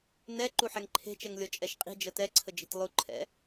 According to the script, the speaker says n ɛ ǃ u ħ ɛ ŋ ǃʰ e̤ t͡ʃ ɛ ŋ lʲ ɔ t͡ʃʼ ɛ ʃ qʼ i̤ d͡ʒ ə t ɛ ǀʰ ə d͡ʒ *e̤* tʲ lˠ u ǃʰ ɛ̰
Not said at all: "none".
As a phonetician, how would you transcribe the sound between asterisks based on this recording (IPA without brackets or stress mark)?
e̤